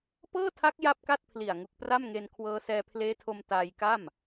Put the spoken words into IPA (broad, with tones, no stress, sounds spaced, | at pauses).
p ɤː˥˩ tʰ a˦˥ k̚ j a˥˩ p̚ k a˥˩ t̚ pʰ l i˨˩ a̯ ŋ u˨˩ k̚ p r a˥˩ m ŋ e˧ n kʰ w ɤː˦˥ s ɛː˧ pʰ l eː˦˥ tʰ o˧ m t aː˧ j k a˥˩ m